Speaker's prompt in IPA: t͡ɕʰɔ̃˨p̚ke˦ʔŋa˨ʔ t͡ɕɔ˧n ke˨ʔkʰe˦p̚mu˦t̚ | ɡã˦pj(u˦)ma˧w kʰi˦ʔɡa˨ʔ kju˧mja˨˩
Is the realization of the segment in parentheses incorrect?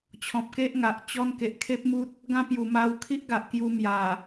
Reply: yes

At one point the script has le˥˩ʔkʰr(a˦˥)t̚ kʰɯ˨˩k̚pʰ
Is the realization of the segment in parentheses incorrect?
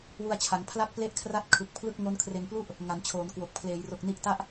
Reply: yes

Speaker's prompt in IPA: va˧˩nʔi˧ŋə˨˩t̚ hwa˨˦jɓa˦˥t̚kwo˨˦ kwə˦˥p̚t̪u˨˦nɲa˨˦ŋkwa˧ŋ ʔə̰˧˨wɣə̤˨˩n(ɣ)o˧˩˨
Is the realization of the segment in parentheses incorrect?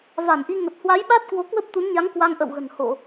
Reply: yes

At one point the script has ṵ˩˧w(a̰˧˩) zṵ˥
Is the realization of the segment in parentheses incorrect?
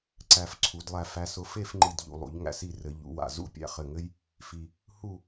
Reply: no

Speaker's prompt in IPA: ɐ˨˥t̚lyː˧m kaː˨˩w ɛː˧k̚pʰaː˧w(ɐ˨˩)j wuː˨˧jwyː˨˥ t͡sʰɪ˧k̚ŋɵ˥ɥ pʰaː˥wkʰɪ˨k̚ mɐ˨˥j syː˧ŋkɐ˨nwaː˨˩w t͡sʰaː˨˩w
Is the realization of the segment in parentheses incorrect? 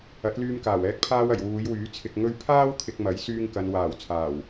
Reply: no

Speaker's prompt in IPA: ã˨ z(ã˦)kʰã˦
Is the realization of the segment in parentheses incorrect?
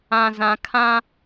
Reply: yes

